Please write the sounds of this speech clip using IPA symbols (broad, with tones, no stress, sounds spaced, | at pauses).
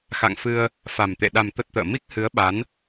x a̰˧˨ ŋ f ɨ˧ ə̯ | f a˨˩ m t̪ ḛ˧˨ ɗ a˨˩ m t̪ ə˦˥ t̚ t̪ ə̰ː˧˨ m i˦˥ k̚ h ɨ˨˦ ə̯ ɓ a˨˦ n